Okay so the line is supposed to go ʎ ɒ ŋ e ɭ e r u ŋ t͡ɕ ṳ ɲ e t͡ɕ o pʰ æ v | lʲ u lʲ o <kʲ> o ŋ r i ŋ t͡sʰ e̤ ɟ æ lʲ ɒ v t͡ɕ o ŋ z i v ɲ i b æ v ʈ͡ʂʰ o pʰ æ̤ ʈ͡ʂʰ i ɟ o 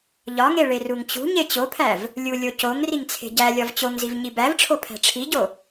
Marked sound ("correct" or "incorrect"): incorrect